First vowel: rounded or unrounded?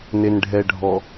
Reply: unrounded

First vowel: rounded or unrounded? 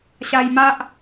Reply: unrounded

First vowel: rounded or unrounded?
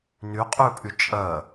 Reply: rounded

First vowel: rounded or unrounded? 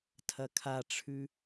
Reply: unrounded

